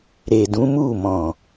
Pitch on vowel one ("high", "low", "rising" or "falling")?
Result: low